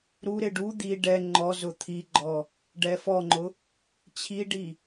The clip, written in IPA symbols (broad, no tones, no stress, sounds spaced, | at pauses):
ɾ u ɾ ɪ ɖ u d̪ i ɖ ɛ ŋ͡ǃ ɔ z ʊ t̪ʰ i ɡ͡ǃ ɔ | ɖ ɛ f ɔ ŋ͡ǃ ʊ | t͡ɕʰ i ɖ i